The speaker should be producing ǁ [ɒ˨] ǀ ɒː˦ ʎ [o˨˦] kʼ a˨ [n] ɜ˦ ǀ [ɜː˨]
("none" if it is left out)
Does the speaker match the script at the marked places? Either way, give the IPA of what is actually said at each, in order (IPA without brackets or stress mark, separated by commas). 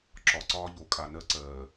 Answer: ɒ˨, o˨˦, n, ɜː˨